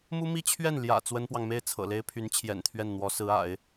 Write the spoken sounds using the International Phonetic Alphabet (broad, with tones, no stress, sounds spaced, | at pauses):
m u˥ m i˥ t͡ɕʰ ɥ ɛ˥˩ n l j ä̰˨˩ t͡s w ə˥ n p w ɑ˨ ŋ m e˥˩ ɪ̯ t͡sʰ ɤ̰˨˩ l e˥ ɪ̯ pʰ y˧˥ n t͡ɕʰ j ɛ̰˨˩ n t̪ʰ ɥ ɛ˥˩ n n̪ w ɔ˧˥ s ɹ̩˧˥ a̰˨˩˦ ɪ̯